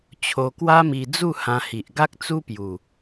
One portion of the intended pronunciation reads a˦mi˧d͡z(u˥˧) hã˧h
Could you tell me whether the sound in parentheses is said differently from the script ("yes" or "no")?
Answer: no